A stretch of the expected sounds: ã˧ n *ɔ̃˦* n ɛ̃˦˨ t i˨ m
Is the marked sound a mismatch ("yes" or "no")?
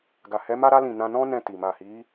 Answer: no